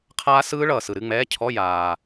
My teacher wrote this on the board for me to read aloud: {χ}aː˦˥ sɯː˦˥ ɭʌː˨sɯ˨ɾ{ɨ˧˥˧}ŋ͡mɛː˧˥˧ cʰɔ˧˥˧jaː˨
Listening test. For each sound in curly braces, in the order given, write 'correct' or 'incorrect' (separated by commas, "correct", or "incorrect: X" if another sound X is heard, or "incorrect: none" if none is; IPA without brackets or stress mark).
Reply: incorrect: qʰ, correct